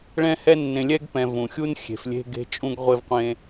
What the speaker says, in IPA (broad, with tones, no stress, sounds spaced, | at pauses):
ɭ ɛ̃˦ h ɛ˦ nː ẽ˨ lʲ ɛ˥ ɡ p ɛ̃˨ v ũ˩ xʲ u˥ n xʲ e̤˨ f lʲ e̤˦ ɡ e̤˦ t͡ʃʼ ũ˦ ɡ ʁʷ e˦ v qʷ ẽ˦